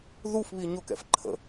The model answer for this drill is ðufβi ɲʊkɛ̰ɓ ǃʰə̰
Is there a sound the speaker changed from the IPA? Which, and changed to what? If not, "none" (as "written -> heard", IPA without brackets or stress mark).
ɓ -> f